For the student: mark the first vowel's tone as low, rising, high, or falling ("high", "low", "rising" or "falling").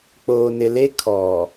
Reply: low